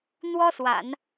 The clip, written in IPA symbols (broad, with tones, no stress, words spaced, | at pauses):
n̪wɔ˥swa̰˨˩˦n